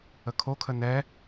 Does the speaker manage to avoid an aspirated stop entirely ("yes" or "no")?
no